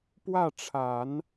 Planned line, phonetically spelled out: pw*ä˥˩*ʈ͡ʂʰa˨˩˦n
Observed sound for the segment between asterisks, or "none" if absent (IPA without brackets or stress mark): ä˥˩